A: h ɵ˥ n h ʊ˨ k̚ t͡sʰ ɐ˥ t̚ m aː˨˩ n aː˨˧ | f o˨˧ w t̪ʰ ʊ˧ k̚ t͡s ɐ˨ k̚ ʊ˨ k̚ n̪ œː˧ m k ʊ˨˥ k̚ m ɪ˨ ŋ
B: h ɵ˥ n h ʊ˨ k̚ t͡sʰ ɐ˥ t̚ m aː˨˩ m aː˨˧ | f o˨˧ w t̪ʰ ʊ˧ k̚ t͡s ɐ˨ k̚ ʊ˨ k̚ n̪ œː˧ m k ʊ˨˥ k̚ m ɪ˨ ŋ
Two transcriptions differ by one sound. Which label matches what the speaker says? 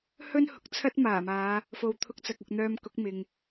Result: B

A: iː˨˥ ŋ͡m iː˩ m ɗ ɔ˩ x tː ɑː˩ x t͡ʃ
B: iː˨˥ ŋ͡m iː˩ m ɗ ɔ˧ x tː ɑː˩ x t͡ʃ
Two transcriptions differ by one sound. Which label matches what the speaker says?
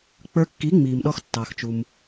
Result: B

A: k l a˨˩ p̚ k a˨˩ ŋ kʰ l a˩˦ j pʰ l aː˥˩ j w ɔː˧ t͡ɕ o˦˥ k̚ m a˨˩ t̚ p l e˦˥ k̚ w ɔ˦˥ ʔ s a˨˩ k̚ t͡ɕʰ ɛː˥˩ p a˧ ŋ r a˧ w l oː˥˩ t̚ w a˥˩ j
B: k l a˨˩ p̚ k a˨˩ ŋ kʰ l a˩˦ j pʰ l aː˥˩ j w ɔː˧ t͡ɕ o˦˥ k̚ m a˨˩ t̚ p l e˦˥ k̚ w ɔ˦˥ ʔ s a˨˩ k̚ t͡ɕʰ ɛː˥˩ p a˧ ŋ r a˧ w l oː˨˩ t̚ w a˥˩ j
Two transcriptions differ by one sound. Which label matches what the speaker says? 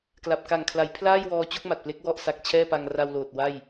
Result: B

